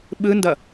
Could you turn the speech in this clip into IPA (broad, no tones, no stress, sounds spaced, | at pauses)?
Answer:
ɓ ɯ n d ʌ